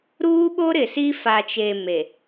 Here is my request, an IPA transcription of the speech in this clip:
ɾuː˦ɓo˦ɾɪ˨si˦ fa˨t͡ʃe˨ me˨

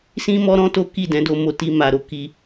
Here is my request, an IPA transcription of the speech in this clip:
sĩ˦ mɔ˦ɾɔ̃˦to˦ ki˦˨dɛ̃˨˦do˧ mo˧ ti˦ma˧ɾo˦ ki˧

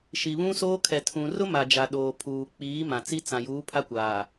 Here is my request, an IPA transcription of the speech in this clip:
ʃi˨βũ˦soː˦kʰɛ˨ tʰũ˨rʊ˦ ma˨d͡ʒa˨ ɗoː˨pʰuː˨k͡piː˨˦ mã˨t͡si˦ t͡sã˨juː˨˦pʰa˦kʷaː˨

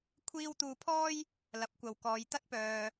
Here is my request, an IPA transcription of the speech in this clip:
kʷʰiː˥w t̪uː˧pʰɔː˥j | lɐ˨˥p̚kʷɐ˨wkɔː˨˧j t̪ɐ˥t̚pœː˨

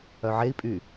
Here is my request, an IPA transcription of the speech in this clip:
œʕei̯ pʼy

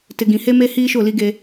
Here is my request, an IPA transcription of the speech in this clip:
tɪ˨ɡĩ˨he˦me˦ hiː˦ʃʊ˦˨li˦ɡe˦

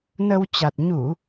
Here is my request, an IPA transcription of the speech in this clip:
nə˧w t͡ɕa˨˩t̚ ɲu˧˩˨

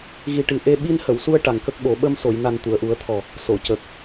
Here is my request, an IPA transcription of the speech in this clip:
ɣi˨˩ʈɨ˨˩ ʔe˧ ɓi˧nhə˨˩˨wsu˧ə̯ ʈa˨˩ŋkə˦˥k̚ɓo˨˩˦ ɓə˧mso˨˩˨jna˨˩n t̪u˨˩˨ə̯ʔu˨˩˦ə̯t̪ʰɔ˨˩ | so˨˩˨cə˨˩k̚

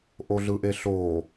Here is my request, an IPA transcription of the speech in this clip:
ʔoɮɯʔeɬo

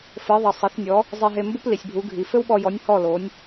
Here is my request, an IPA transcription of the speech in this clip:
fɘ˩˥ðˤɐ˩sˤɐ˩˥θnʲɔ˩˥ | zˤi˧ɦe˧ mbu˥pli˩sʲbʱu˩˥ɡʱi˩ fɘ˥wɓɔ˧jɔ˩˥nʲ hɔ˥˩lo˩˥nʲ

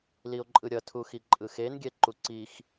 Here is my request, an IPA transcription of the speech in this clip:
lio̯ǃʼɯɾʲʌtʰu xiǃʼɯxenɡʲɛ ǃuǀix

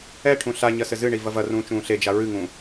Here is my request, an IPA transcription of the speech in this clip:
ɛ ʈʰũɬaɲɐ sɘzɨɳi vɐvɐrũː t͡ʃũːɬed͡ʒa ɹɨŋũ

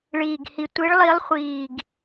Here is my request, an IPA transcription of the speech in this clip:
ɭiː˨˩ɡhi˨˩ tʷi˨˦ɭlˠi˨˦lˠχʷiː˨˩ɡ

